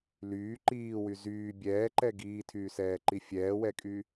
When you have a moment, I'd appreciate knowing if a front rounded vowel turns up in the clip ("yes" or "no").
yes